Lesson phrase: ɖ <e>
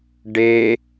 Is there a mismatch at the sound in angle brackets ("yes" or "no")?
no